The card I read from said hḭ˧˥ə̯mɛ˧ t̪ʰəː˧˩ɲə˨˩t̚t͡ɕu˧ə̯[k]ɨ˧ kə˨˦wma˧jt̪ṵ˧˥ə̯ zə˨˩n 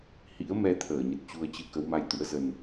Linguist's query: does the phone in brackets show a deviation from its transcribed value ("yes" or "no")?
yes